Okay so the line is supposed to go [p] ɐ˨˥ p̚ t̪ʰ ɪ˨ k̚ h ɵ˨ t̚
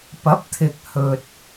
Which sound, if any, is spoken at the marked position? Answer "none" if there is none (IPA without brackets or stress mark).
p